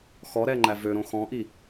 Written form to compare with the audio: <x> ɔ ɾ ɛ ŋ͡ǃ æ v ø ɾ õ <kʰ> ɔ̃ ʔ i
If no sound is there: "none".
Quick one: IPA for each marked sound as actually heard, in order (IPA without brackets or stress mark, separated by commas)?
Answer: x, x